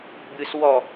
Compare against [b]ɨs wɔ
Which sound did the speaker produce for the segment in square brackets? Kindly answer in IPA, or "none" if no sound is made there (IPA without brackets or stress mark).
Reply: b